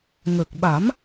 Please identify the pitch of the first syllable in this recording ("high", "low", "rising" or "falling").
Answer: low